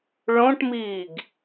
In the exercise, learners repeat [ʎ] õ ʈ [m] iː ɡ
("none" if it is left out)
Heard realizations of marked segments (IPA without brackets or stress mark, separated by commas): ɭ, m